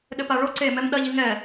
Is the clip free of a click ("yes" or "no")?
no